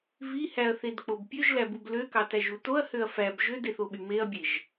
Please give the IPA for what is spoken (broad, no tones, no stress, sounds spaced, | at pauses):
v i h æ ɐ̯ θ e d k͡p o b pʲ ø ʒ l æ b u b l ø k ɑ t æ ʒ u t o ɐ̯ h ø ɐ̯ f æ b ʒ ø d e θ o ɓ y m e ɐ̯ bʲ e ʒ